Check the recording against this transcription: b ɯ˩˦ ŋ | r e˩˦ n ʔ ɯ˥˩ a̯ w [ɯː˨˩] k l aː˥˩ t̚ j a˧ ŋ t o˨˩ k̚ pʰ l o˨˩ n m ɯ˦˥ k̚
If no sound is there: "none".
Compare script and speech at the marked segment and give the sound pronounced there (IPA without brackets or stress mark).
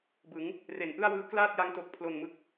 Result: ɯː˦˥